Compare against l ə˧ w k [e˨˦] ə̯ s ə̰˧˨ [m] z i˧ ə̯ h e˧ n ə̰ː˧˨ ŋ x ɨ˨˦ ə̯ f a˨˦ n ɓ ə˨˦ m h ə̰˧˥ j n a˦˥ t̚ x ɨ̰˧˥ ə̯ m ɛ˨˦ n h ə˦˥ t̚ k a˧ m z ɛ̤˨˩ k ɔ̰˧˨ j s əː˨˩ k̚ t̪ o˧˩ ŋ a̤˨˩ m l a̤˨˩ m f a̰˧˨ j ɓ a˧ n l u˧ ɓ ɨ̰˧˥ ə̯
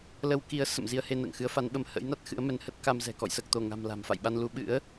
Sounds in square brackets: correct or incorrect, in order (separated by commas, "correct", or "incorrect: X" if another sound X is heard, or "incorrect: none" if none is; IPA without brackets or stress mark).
incorrect: i˨˦, correct